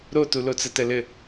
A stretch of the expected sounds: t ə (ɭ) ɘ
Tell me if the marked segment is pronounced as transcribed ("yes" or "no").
no